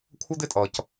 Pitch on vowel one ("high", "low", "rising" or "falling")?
high